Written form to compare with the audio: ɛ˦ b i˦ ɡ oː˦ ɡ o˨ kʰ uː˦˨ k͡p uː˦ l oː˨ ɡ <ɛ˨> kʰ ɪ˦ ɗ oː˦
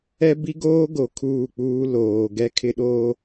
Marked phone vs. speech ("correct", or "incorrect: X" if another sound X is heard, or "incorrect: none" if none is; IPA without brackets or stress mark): incorrect: ɛ˦